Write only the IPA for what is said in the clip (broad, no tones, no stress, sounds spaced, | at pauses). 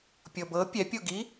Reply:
pʲ ɤ b ɤ pʲ ɛ pʲ o ɡ i